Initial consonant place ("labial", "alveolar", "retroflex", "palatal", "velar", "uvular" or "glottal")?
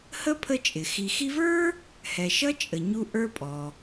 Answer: glottal